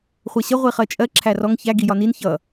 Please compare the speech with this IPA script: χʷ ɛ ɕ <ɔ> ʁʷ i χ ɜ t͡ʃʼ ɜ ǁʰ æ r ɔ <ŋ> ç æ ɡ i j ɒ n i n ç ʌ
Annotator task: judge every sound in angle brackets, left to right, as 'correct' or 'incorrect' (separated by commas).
incorrect, correct